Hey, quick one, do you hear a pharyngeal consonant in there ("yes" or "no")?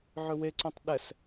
yes